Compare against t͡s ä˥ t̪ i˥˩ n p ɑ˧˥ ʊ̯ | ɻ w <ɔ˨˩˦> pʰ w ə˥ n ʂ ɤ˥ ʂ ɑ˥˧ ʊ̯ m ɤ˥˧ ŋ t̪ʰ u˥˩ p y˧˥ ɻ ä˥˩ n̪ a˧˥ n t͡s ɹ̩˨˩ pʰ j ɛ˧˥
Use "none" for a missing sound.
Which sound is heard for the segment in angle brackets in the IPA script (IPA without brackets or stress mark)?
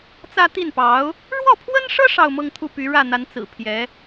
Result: ɔ˥˩